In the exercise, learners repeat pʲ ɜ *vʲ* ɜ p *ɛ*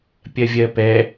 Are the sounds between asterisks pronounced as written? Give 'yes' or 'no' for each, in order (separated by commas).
yes, yes